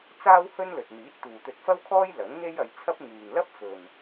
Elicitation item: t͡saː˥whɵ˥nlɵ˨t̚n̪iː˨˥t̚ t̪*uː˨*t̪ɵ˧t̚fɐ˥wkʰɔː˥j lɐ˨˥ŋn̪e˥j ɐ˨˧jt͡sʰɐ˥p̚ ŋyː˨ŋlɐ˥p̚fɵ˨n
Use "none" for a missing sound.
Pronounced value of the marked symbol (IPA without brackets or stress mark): uː˨